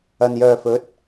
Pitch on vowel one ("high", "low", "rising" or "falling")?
low